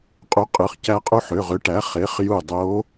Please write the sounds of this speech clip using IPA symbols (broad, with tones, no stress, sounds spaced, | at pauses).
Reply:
qʼ u˩˥ qʼ ɯ˩˧˩ χ c æ˧ qʼ u˧ ħ ø˩˧˩ ʁ ø˩˥ ʈ æ˩˥ χ e˩˥ χ j u˧˩ dˤ o˧˥